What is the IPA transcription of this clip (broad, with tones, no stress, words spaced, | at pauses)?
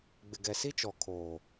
ɡ͡bɪ˨ɡɛ˨si˦t͡ʃɔ˨ kʰoː˨